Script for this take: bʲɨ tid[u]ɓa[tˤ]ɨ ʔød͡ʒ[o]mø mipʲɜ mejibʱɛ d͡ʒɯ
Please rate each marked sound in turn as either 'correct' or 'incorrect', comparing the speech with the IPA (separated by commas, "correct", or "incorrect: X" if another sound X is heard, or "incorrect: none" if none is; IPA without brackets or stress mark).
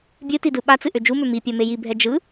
incorrect: ɯ, incorrect: t͡s, incorrect: u